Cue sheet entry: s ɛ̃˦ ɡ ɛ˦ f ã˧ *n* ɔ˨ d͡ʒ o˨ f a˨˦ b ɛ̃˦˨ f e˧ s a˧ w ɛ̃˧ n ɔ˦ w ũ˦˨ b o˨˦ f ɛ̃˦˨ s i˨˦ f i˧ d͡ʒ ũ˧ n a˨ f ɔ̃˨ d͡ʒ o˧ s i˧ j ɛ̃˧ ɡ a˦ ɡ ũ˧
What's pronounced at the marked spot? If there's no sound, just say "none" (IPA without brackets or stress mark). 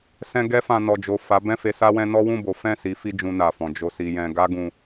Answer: n